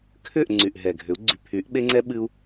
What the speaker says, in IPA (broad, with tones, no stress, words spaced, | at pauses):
kʰʏ˦˨ʔ ŋ͡ǀy˨ʔɦɛ˨ɡʱʏ˨˦u̯ ɡ͡ǀy˨pʰy˨˦ʔɓe˦ŋ͡ǀɛ˦ ɓɨ˧u̯